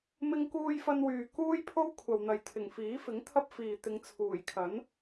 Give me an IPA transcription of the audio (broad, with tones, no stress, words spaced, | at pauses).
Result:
mɪ˥ŋkuː˥jfɐ˥nwyː˨ kuː˥jpʰo˥w kʷʰɐ˨wn̪ɐ˨jt̪ʰɪ˨˩ŋ fiː˨˥fɪ˨˥ŋt̪ʰɐ˥p̚fiː˨ t̪ɪ˨˧ŋt͡sʰuː˨˩jkʰɐ˨˥n